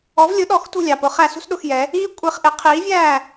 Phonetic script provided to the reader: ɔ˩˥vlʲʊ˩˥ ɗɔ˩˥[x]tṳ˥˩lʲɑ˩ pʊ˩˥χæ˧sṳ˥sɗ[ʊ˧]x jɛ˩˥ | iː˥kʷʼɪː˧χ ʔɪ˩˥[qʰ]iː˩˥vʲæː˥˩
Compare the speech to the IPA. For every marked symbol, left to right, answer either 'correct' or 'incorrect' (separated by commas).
correct, correct, correct